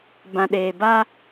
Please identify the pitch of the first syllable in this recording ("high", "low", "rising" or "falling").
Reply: low